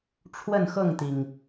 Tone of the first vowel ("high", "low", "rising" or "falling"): falling